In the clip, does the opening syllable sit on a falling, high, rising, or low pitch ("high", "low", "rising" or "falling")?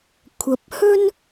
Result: low